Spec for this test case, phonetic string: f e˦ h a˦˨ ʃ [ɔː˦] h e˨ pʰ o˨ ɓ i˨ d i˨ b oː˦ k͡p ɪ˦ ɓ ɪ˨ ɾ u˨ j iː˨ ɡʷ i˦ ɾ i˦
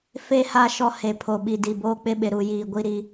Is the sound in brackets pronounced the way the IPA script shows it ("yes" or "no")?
no